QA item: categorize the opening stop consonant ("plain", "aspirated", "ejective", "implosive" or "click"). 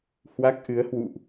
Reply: plain